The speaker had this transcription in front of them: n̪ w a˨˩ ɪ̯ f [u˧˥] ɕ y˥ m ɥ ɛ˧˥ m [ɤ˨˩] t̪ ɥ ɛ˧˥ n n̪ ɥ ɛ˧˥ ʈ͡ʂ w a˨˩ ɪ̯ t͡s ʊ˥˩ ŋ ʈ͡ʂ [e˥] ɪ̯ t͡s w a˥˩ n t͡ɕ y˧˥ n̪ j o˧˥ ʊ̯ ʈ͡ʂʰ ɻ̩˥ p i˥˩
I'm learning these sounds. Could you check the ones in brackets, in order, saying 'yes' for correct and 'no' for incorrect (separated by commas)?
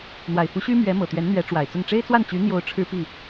yes, yes, yes